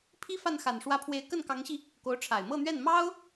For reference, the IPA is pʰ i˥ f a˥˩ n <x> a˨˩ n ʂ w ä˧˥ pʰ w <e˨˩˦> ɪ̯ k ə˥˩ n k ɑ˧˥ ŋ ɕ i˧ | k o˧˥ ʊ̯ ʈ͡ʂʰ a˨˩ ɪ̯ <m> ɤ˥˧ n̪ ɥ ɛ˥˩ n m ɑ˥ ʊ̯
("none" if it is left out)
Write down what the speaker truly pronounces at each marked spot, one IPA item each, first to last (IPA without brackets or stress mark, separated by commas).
x, e˧˥, m